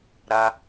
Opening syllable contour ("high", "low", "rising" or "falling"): high